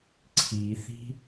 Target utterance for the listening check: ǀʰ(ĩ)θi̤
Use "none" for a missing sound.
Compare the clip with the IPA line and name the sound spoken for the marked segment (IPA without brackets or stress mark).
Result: i